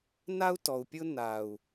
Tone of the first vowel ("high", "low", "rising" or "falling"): high